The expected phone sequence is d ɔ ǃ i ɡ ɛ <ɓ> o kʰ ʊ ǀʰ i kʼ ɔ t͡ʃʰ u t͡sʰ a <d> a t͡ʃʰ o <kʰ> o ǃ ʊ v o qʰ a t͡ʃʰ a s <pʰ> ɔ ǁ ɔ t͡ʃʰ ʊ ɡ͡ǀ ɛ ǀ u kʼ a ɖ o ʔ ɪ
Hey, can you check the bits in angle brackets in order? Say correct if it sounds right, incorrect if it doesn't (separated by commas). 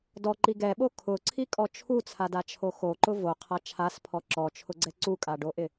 correct, correct, incorrect, correct